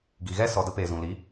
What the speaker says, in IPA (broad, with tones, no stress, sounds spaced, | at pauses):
ɡ i˨ ɣ ɛ˦ s ɔ˨ d ə˧ p eː˨ z ũ˨ l i˨˦